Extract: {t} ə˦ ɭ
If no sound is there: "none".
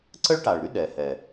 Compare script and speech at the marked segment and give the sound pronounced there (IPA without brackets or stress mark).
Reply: ǀ